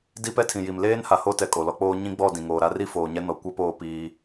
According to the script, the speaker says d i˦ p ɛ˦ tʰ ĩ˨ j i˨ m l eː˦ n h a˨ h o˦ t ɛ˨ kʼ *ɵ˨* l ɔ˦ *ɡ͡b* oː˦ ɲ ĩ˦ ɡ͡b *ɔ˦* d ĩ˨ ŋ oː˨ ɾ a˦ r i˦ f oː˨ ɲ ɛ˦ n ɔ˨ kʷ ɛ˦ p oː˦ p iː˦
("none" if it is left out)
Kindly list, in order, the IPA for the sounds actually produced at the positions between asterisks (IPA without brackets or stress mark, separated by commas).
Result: o˨, k͡p, ɔ˦˨